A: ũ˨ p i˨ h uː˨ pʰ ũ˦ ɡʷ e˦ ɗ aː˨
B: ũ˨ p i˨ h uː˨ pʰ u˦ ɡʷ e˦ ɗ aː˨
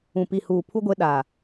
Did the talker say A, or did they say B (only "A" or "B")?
B